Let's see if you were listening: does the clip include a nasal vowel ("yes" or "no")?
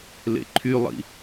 no